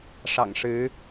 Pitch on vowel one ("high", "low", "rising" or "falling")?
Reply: low